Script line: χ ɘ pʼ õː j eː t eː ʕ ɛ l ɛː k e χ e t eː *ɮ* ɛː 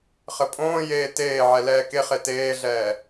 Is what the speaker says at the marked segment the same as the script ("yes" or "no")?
yes